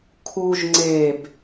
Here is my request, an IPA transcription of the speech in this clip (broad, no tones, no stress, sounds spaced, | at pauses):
kʰ u ʒ ŋ͡ǀ e b